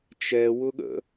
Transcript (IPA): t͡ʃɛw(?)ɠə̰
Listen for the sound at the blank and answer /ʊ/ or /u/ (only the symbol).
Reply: ʊ